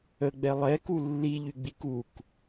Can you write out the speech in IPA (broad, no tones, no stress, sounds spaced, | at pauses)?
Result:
ə ɡ͡b ɛ lˠ ɛ k u lː i ʎ y ɡ͡b i k u k